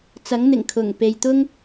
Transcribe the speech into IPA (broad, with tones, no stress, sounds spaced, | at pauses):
t͡s ɐ˨˥ ŋ n̪ ɪ˨˩ ŋ kʰ ʊ˨˩ ŋ p e˨ j t̪ ʊ˥ ŋ